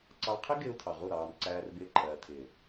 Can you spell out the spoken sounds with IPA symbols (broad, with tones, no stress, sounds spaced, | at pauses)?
ǀ ɑ˦ qʰ ɪ˦ ɡ ɪː˦ u̯ tʰ ɑ˨ ʁ u˦˨ ɾ ɑː˨ n ǀ æː˦ r b ɪː˦ ǃʰ ɜː˨ tʰ ɪː˨